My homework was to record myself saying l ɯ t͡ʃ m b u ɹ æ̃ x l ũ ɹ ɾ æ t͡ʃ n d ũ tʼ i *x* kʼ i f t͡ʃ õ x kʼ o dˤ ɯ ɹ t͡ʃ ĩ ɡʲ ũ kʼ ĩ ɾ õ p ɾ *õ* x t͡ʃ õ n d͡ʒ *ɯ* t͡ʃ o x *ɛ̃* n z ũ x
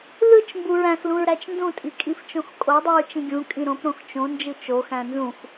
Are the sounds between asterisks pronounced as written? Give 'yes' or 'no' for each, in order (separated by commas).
no, yes, yes, no